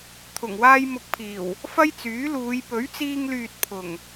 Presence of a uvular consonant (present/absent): absent